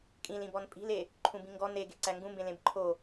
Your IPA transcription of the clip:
kʼĩlĩbɔn pʼi̤le | ǃʰũbĩŋɡɔ neɡe ǀæŋɡũmbẽ lẽbǃʰo

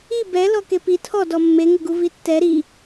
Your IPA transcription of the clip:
i bɛlɔ kepi tʰɔdɔ mːeŋɘɡu vitːɛ ɾi

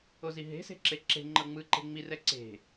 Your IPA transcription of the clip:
oziɦe̤ se̤ǁeǁe̤ ŋ͡ǃɤŋ͡mɯ ǃe̤ŋ͡mi rɛǀe̤

